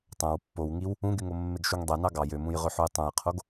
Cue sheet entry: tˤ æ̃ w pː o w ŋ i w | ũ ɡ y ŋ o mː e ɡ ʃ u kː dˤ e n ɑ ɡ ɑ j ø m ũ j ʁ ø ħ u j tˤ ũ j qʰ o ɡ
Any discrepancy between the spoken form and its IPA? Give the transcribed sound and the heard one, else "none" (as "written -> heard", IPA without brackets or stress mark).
kː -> ŋ